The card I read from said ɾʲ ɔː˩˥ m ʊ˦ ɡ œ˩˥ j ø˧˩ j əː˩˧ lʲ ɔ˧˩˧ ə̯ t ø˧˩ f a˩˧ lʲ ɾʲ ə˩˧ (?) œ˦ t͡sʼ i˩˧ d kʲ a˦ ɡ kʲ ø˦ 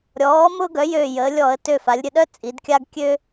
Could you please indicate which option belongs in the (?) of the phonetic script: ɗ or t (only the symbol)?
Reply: ɗ